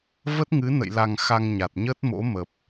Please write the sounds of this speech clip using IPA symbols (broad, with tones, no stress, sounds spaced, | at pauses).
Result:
v ə˦˥ t̚ ŋ ɨ˨˦ n ə̰˧˨ j l a˨˩ ŋ x a˧ ŋ ɲ a˨˩ t̚ ɲ ə˦˥ t̚ m o̰˧˥ m ə˨˩ p̚